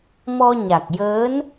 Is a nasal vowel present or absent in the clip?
absent